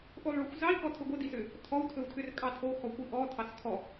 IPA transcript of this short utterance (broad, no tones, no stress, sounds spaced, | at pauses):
ʔ o lˠ ɭ ɵ xʷ z ɑ i̯ k ɔ tʰ ɵ ɡʷ ə d i s ʏ | tʰ ɔ u̯ tʰ ɵ u̯ tʰ ʏ r kʼ ɑ tʰ o x ɔ kʷ i ʔ ɔ tʰ ɑ s kʰ ɔ